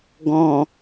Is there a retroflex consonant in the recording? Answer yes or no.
no